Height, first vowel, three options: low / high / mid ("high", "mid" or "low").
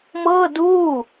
mid